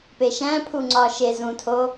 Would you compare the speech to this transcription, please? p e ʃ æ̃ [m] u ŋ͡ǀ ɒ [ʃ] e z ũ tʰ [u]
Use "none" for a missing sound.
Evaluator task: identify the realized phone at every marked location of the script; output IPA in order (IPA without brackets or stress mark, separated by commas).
pʰ, ʃ, o